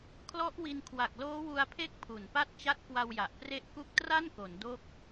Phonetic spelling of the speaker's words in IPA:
kʰ l ɔ˦˥ ʔ w i˧ n kʰ w a˨˩ k̚ l oː˦˥ w u˧ a̯ pʰ e˦˥ k̚ pʰ u˨˩ n p a˥˩ t̚ t͡ɕ a˦˥ t̚ k w a˧ w j a˨˩ ʔ p r e˦˥ ʔ k u˦˥ k̚ t r a˥˩ n k o˩˦ n d o˥˩ k̚

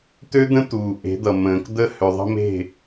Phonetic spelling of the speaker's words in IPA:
t̪ ø˦ d̪ ə̃˦ t̪ uː˨ ʔ e̤˨˦ d̪ ʌ˨ m ə̃ː˨ k d̪ ə˦ h ø˨ ðˤ ə̤˦ m e̤˦˨

